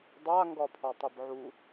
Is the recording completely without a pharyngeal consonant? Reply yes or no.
no